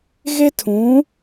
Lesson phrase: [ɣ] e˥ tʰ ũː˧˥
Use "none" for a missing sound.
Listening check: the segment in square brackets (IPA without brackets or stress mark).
ɣ